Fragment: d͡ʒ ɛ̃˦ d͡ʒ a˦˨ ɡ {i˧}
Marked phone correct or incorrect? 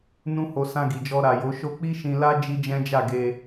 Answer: incorrect